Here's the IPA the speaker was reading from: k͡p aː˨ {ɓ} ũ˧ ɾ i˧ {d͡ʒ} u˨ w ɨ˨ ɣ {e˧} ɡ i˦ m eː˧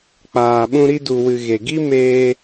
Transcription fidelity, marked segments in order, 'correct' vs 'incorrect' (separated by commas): correct, incorrect, incorrect